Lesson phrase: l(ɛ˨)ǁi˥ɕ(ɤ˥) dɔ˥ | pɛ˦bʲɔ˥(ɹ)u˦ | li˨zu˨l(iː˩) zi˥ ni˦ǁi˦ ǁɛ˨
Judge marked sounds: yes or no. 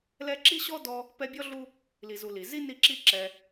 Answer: no, no, no, no

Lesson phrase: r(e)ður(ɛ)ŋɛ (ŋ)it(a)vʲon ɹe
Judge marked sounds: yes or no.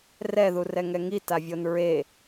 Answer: no, yes, yes, yes

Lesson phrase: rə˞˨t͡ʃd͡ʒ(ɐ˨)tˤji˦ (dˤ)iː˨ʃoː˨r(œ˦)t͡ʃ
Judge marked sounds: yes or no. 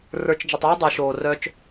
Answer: no, yes, yes

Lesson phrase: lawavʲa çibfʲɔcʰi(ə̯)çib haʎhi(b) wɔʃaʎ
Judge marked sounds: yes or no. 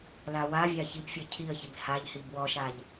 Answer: yes, yes

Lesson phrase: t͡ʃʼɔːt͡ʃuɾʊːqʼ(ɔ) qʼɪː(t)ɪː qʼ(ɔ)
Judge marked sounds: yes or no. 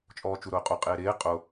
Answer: no, no, no

